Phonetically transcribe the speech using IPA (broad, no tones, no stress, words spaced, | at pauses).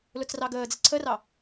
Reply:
lʊt͡srɑɡəːd͡zɪ ǀʰərɑ